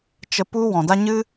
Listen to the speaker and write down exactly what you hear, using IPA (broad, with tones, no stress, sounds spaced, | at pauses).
t͡ʃ ə˧ p u˦ w ɔ̃˨ d a˦ ɲ ɨ˦